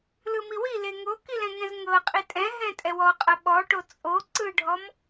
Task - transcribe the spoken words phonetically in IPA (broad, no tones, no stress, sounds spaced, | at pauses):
l ɯ m i w i l e ŋ o k i l ɛ̃ ŋ ɛ̃ z ŋ ɤ qʼ i tʼ ɛ̃ ɦ ɛ̃ tʼ ɛ w ɔ qʼ ɤ ɓ ɔ ʈ o t͡sʼ o ǀ ɯ ɖʱ ɔ m